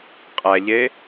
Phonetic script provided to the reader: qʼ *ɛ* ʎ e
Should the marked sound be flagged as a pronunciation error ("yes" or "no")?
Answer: yes